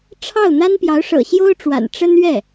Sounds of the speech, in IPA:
ʈ͡ʂʰ ɑ˥˩ ʊ̯ n̪ a˥ n p j ɑ˧˥ ʊ̯ ʂ ɤ̰˨˩ ɕ j o˥ ʊ̯ ʈ͡ʂ w a̰˨˩ n ʈ͡ʂ ə˥ n ɥ ɛ˥˩

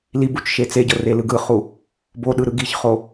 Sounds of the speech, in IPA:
l i b u t͡ʃ ʃ e t͡s e ɟ ɤ r e l ɯ ɡ ɯ χ u | b o ɗ ɯ ɾ ɯ ɡ i ç χ o

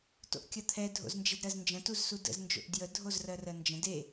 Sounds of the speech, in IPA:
t o̰ ʔ kʲ ɐ t̪ʰ ɛ dʱ o̰ z n d͡ʒ e d ɾ ɜ z n d͡ʒ ə̃ t u z s u d ə̰ z n d͡ʒ o̰ ʔ d j ə dʱ o z r ɜ r ɜ n d͡ʒ ə̃ d e

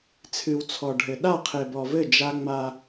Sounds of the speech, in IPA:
t͡sʰ ɨ˨ w t͡sʰ ɔ˨ ɖʱ ɘ˨ ɗ a˦˨ qʰ e˨ b ɔ˨ v ɘ˦˨ d͡ʒ a˦ ŋ͡m a˦

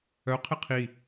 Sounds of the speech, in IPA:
œ qʰ ɪ qʰ i

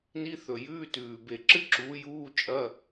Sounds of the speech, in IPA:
n i˧˥˧ θ ɵ˨˩ j ʉː˧˥˧ t ʉː˨˩ b e˨˩ ǁ ɨ˥ ǁ uː˨˥ j uː˧˥˧ t͡ʃʼ ɐ˧˥˧

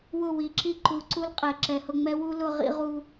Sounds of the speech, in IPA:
w ʊ˦˨ w i˨˦ ǁ i˧ ǃ u˨˦ ǀ u˦ l qʼ ɛ˨ ǁ ɛ˨ h ʊ˧ ŋ͡m ɛ˦ w u˦ l ʊ˧ ʁ ḭ˧ ʁ u˧

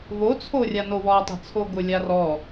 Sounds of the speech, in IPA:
v o t͡sʰ o rʲ a n o w ɔ tˤ i̤ t͡sʰ o ɡ ʊ lʲ a r ɔ

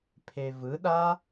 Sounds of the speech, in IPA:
pʰ e v ɯ ɗ a

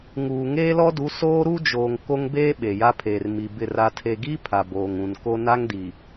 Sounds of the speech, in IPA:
ŋ uː˨ ŋ eː˦ l ɔ˦ d u˨˦ s oː˦ ɾ u˦ d͡ʒ oː˨ ŋ k o˦ ŋ b eː˦ ɓ e˨ j a˦ pʰ eː˨ r m i˨ b ɪ˦˨ r a˨ tʰ e˨ ɡ iː˦ pʰ a˨ b oː˨ ŋ ũ˨ n k o˦ n a˦ ŋ d i˨

